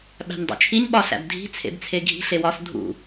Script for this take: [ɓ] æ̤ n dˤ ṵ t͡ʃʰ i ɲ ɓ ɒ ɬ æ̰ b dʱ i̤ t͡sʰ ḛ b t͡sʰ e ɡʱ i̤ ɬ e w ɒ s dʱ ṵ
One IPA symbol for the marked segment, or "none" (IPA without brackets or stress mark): ɓ